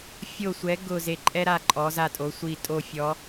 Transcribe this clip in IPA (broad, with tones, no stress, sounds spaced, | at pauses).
fʲ o˧˩ sʷ ɛ˩˧ ɡ ʊ˧˩ z e˧˩ ǃʼ ɛ˥ ɾ a˧ ǃʼ ɔ˩˧ z a˧˩ tʼ o˩˧ sʷ i˧˩ tʼ o˧˩ fʲ ɔ˩˧